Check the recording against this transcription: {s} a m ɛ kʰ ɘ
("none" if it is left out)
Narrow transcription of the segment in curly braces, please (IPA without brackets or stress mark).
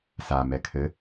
s